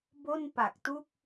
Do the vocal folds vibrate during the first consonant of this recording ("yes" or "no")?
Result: yes